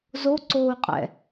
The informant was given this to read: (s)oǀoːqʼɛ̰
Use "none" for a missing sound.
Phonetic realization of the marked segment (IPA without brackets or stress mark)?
z